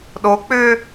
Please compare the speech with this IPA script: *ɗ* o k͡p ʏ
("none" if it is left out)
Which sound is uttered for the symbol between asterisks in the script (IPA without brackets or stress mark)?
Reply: ɗ